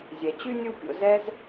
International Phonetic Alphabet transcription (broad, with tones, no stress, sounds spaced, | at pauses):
zʲ ɛ˩ t͡ɕ y˥ nʲ u˦ pʲ o̰˨ z ɛ˦ z